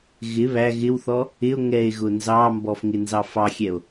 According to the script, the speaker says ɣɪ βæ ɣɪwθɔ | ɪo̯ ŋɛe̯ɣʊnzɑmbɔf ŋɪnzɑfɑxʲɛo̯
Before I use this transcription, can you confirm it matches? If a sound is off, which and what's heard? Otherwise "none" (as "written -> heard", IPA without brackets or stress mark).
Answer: none